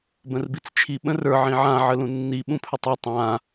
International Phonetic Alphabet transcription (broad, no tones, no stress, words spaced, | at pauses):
bə̃rbit͡st͡ʃʰi ɓə̃rə˞ ʕĩʕã ʕəlũnːi ɓũpʰɵtˤi tˤã